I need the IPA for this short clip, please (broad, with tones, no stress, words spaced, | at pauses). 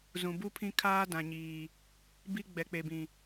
zũ˨ bu˦pʰĩ˦ kʰaː˦dã˨ɲiː˨ | bi˦ ɡ͡bɛ˨k͡pe˨bĩ˨